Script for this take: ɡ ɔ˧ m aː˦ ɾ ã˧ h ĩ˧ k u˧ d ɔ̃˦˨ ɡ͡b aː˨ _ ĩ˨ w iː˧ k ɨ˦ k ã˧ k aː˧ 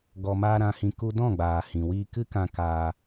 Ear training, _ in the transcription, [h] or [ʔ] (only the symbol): h